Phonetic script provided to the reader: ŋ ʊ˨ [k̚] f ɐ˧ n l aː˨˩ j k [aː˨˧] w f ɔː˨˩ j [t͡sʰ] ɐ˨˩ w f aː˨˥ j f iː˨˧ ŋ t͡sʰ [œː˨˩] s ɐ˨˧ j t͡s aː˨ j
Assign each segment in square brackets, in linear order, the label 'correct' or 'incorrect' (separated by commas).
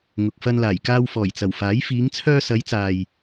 correct, incorrect, incorrect, incorrect